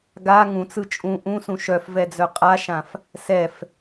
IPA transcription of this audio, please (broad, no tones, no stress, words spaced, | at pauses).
ɡa ŋũt͡sɯ t͡ʃʼũ ʔũsũ ʃœfvɛd͡zœ qʼaʃãf | sɛf